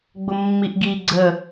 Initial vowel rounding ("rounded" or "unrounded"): rounded